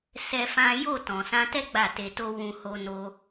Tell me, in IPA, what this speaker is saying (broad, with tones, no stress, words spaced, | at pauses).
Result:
sɛ˦fã˦ jo˦˨tɔ̃˨sã˧tɛ˦ ɡ͡ba˦˨te˧to˦ wũ˧ho˧no˧